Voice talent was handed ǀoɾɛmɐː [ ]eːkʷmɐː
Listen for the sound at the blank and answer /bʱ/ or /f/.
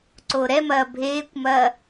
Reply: bʱ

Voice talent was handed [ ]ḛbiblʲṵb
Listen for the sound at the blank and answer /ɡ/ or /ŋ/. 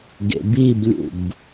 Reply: ɡ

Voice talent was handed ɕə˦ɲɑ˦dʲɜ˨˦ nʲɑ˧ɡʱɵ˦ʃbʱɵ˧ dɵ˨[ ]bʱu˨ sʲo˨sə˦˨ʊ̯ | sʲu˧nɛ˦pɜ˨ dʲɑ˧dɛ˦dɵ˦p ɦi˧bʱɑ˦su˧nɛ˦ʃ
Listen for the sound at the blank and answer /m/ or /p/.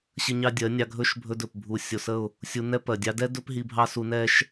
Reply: p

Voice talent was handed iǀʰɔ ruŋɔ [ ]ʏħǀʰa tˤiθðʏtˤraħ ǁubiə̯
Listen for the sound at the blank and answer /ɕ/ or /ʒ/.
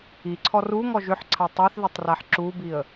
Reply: ʒ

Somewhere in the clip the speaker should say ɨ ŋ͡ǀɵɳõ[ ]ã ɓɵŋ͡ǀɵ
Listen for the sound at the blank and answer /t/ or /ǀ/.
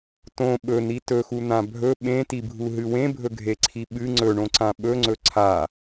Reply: ǀ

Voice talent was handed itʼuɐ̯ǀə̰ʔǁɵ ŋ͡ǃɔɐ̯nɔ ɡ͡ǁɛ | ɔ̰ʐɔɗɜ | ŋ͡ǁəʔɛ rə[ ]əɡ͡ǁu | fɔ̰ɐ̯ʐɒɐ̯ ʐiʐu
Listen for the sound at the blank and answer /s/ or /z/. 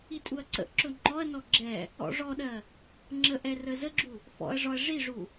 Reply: z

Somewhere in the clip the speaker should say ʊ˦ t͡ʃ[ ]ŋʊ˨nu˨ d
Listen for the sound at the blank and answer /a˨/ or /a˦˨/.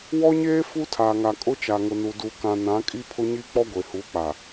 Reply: a˨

